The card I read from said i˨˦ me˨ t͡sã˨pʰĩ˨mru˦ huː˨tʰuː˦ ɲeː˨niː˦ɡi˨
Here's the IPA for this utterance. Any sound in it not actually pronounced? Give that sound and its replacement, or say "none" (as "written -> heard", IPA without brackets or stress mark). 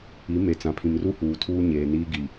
none